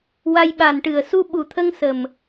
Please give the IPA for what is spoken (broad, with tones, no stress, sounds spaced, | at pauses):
w a˧ j ɓ a˨˩ n ʈ ɨ˨˩ ə̯ s u˧ ɓ u˨˩ t̪ʰ ə˧ ŋ s ə˨˩ m